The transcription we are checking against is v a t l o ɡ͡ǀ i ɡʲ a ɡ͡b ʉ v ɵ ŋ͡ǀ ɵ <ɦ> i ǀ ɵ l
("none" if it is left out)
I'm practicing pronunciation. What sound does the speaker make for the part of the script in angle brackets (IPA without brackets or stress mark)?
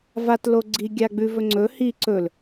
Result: h